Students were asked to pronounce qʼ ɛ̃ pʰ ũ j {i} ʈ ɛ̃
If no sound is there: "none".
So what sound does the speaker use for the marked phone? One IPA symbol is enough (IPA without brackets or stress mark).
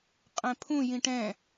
ĩ